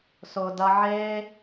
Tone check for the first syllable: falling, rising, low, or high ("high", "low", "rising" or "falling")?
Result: low